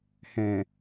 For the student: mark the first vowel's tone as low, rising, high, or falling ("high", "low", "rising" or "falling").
low